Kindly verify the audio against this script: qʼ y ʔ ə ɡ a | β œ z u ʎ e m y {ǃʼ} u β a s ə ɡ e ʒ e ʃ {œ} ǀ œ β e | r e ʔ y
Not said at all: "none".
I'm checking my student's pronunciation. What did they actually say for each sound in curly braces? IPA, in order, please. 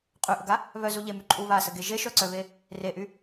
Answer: ǃʼ, œ

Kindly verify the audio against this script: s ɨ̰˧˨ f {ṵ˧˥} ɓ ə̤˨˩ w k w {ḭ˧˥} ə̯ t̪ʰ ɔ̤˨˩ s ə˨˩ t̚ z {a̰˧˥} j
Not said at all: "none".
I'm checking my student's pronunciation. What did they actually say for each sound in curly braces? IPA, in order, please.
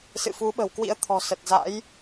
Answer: u˨˦, ḭ˧˥, a̰˧˥

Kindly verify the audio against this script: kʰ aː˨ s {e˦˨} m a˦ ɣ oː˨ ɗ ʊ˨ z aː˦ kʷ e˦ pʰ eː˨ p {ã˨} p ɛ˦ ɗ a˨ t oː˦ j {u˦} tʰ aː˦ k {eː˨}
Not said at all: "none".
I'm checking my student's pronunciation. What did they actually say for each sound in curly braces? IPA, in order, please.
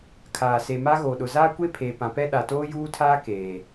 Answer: e˨, ã˨, uː˦, eː˨

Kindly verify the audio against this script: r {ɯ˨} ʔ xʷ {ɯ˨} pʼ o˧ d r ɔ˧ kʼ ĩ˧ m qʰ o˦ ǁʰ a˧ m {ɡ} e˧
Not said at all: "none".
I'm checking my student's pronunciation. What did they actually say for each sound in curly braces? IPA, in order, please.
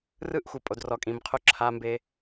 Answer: ɯ˦, ɯ˨, b

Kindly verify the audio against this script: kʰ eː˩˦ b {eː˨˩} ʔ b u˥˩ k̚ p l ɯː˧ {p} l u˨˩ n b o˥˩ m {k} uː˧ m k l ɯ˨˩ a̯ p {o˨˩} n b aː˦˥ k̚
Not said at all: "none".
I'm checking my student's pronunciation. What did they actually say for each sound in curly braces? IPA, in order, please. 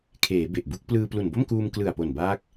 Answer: e˨˩, p, k, o˨˩

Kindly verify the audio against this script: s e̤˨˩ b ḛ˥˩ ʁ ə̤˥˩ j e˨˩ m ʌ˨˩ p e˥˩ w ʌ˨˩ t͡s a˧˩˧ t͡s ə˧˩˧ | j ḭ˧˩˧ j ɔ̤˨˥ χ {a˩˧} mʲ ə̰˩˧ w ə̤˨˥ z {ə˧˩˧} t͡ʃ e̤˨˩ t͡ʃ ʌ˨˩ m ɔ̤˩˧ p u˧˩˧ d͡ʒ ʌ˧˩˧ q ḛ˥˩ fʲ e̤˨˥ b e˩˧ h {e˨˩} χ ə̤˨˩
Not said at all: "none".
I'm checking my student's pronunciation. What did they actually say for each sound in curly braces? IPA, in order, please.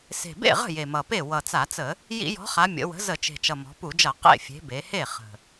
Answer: a˩˧, ə˧˩˧, e˥˩

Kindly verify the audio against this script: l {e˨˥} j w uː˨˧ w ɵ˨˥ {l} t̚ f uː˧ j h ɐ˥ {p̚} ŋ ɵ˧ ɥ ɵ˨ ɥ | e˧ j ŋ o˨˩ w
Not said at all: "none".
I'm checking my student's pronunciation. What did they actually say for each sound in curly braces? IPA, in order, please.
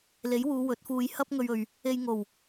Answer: e˨˥, none, p̚

